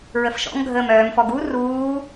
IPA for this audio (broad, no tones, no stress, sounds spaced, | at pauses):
ɹ ə f ʃ ɔ̰ ŋ ɡʱ əː m œː m f ɔ ɡ u r uː